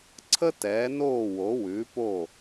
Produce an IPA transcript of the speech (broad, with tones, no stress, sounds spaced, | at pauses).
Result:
ǀʰ ə˥ t ɛː˩˥ n oː˥˩ w o˩˥ w ʉː˩˥ p o˥˩